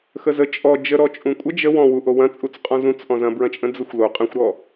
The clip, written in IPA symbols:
x ə z ə t͡ʃʼ ɔ d͡ʒ ə ɾ ɔ t͡ʃʼ ũ kʷʼ ə d͡ʒ ə w ɔ̃ w u ʔ o w ɐ̃ t͡sʼ u t͡s qʼ ɔ̃ z ũ t͡s ʔ ɔ̃ z ɐ̃ b ɹ ɐ̃ t͡ʃʼ ə̃ d͡z ə xʷ l o qʼ ə̃ xʷ ɾ ɔ

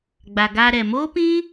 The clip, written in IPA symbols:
ɡ͡b a˨ ɡ aː˧ ɾ ɛ˨ m oː˦ p ĩ˦

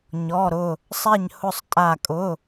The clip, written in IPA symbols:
ɲ ɔ˧˥˧ ɾ ʊ˥˧ | sˤ ɛ˥˧ ɲ h ʊ˥˧ sˤ tʼ a˥˧ kʼ ʊ˧˥˧

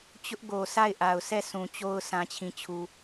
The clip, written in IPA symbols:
t͡ɕ ʊ˦ ʔ ɡ o˨ s a˦˨ ɪ̯ ʔ a˨ ʊ̯ s ɛ˦˨ s ũ˨ t͡ɕ o˦ ʊ̯ sʰ ã˦ t͡ɕʰ ĩ˦˨ t͡ɕʰ u˦

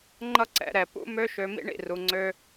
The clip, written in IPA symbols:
ŋ͡ǃ ʌ˥ ǀ ɛ̰˧ ɾ ɛ˩ p ṵ˥ m ø˥ ʃ ø˧ m ḭ˥ ɳ ḭ˩ r u˩ ŋ͡ǀ ø˧

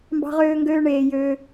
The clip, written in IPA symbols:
m b ɑ̤˥ ʁ øː˥ ŋ ɡ øː˥ ɳ eː˦ j øː˥

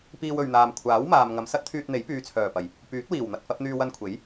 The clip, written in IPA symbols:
p iː˧ w ɵ˨ ɥ n̪ aː˨ m kʷʰ aː˨˥ w m aː˨ m ŋ ɐ˨˧ m s ɐ˥ t̚ t̪ʰ yː˧ t̚ n̪ e˨˥ j p yː˨˧ t͡sʰ œː˨˩ p ɐ˨˩ j | p yː˨˥ t̚ w iː˨˩ w n̪ ɐ˧ t̚ f ɐ˨˥ p̚ n̪ yː˧ w ɐ˧ n kʷʰ e˨˥ j

